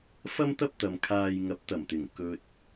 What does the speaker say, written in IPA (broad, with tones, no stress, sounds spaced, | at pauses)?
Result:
f ɐ˥ m t̪ ɐ˥ p̚ t̪ ɐ˨ m kʰ aː˧ j ŋ ɐ˨˥ p̚ t̪ ɐ˨˩ m t̪ ɪ˨˩ ŋ k ɵ˨ t̚